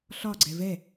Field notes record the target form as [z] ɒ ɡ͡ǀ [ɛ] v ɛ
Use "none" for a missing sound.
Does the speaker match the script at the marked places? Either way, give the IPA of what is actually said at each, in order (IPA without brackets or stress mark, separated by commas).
ɬ, ɛ